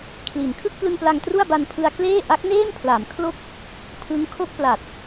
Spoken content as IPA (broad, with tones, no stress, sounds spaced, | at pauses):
kʰ l i˩˦ n kʰ ɯ˥˩ k̚ p l ɯ˧ ŋ p l a˧ ŋ t r u˥˩ a̯ b a˧ n pʰ ɯ˧ a̯ k l eː˥˩ ʔ a˦˥ k̚ n eː˥˩ m pʰ l a˩˦ m kʰ l o˥˩ k̚ | pʰ ɯ˦˥ ŋ kʰ o˥˩ k̚ p l a˨˩ t̚